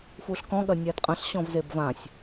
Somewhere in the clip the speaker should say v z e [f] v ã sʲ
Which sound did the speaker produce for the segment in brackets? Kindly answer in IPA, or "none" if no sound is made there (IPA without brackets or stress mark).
b